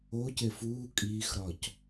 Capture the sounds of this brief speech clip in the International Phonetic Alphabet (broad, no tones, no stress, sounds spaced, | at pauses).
o c e f uː kʼ iː x ɾ ɒ c